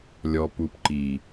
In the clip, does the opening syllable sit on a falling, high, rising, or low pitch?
low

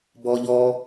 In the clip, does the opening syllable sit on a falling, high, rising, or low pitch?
high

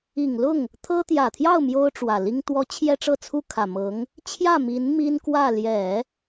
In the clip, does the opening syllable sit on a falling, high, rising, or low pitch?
low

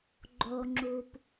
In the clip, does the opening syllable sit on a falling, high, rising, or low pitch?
low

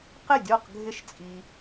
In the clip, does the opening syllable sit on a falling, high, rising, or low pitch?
falling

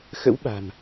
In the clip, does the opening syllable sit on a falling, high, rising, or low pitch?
rising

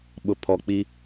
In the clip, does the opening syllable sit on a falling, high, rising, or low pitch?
low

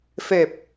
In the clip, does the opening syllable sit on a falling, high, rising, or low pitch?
low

